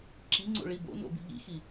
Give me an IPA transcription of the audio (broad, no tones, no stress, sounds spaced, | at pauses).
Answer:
ǁ i ŋ͡ǀ o̰ ɭ i b o̰ n o̰ b i̤ ʎ ḭ x i